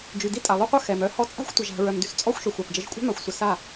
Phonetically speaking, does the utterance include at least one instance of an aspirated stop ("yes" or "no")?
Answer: no